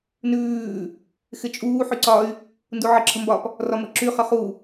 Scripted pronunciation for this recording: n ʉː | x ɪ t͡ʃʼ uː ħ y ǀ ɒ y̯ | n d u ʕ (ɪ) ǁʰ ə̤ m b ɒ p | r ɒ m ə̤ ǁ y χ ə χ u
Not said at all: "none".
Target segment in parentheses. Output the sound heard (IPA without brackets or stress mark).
ə